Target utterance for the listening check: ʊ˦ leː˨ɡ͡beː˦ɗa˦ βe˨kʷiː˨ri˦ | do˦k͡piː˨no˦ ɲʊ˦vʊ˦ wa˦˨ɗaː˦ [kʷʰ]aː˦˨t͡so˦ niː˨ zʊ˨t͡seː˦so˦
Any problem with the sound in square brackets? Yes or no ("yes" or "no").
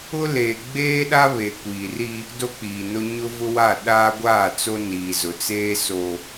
yes